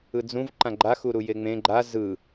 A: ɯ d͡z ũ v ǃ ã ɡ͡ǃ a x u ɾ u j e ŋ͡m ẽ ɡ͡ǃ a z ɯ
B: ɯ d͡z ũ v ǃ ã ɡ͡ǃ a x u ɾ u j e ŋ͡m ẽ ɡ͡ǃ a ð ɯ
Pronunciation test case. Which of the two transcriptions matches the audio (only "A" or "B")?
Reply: A